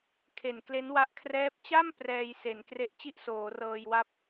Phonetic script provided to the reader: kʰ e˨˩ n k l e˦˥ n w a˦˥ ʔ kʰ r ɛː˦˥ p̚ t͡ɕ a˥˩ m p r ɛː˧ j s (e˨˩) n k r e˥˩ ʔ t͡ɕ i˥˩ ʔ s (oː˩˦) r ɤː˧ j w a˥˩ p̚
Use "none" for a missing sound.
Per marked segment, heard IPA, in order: e˩˦, oː˩˦

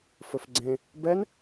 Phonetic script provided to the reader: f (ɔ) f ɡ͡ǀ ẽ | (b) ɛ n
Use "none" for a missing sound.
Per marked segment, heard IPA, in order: ɵ, b

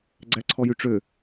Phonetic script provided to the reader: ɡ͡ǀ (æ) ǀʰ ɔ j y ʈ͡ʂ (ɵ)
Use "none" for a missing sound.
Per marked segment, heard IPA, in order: æ, ø

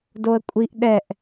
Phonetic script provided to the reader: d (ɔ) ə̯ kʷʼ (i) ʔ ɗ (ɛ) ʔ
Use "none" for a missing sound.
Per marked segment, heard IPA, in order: o, i, ɛ

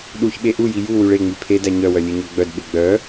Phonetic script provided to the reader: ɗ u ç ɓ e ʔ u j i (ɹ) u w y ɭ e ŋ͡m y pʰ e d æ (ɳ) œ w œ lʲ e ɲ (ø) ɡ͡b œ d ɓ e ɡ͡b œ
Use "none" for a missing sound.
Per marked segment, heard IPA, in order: j, ɲ, œ

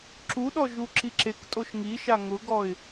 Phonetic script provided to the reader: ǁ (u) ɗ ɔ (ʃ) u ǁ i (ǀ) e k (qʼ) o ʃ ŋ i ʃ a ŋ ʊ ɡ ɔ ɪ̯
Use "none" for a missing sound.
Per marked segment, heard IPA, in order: u, ʒ, ǁ, tʼ

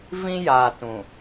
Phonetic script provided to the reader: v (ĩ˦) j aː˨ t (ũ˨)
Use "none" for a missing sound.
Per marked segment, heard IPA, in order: ĩ˦, ũ˨

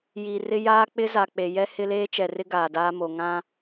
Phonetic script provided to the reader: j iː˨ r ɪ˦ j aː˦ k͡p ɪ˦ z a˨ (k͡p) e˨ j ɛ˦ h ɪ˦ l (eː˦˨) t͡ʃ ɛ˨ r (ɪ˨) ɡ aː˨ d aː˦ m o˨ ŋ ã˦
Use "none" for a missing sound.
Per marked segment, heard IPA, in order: k͡p, eː˦, ɪ˦

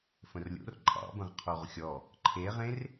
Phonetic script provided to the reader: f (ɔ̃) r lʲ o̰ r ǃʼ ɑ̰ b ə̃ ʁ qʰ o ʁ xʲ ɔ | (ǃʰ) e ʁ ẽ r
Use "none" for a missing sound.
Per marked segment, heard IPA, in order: ə̃, ǃʰ

